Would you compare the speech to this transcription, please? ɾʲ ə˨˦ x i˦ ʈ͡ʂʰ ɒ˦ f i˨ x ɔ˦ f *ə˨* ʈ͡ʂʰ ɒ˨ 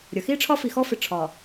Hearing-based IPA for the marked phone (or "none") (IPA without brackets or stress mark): ɪ˨